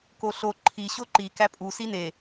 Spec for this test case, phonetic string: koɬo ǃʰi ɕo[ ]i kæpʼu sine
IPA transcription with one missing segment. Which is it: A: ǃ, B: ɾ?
A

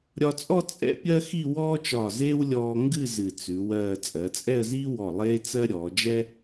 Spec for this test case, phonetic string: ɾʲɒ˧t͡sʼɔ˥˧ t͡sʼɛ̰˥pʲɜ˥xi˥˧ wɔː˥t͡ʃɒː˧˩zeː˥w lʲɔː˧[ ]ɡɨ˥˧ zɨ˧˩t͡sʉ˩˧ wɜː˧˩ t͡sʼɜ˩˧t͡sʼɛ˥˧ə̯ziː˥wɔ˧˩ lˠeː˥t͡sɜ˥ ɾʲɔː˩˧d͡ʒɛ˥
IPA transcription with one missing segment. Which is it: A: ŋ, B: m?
A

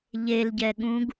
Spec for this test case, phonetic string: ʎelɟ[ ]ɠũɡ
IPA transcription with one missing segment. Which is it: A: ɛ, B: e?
A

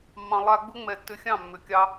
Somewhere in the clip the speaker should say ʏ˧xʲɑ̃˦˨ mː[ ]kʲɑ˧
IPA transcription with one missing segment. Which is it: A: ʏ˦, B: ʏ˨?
B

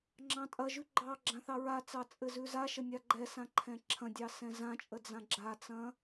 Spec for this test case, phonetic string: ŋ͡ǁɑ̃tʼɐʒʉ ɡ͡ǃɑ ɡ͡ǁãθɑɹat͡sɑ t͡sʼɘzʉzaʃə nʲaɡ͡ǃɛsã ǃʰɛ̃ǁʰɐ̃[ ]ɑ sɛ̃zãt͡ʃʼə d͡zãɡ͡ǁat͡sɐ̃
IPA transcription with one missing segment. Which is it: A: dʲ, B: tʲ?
A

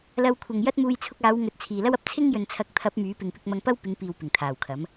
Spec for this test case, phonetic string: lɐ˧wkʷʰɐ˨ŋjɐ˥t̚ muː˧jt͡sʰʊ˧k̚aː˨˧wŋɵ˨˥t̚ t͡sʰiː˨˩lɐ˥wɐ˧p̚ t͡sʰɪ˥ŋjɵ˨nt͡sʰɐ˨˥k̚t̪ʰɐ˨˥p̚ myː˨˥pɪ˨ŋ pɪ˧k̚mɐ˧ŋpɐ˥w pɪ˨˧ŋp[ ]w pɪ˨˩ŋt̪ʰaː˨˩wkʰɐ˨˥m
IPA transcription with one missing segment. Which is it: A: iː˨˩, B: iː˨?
B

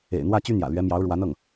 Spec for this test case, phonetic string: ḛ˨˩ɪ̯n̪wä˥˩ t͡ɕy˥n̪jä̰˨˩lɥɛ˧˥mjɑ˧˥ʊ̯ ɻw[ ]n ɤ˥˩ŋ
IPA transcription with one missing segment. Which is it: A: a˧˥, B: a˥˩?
A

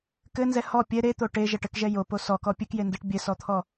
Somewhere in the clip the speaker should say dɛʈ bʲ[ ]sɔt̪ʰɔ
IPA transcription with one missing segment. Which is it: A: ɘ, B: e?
A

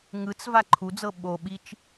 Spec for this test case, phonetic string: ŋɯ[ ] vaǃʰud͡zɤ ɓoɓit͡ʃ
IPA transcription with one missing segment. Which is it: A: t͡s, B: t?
A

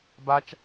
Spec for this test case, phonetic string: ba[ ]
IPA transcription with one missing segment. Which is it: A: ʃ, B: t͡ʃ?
B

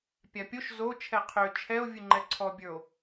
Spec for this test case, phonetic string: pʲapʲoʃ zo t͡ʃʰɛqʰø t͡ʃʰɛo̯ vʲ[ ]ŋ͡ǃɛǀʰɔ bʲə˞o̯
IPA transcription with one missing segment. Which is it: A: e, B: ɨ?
B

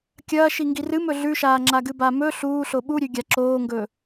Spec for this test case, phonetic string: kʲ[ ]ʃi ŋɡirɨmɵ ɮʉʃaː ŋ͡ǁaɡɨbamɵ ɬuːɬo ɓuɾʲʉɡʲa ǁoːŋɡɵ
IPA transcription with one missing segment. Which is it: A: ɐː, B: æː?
A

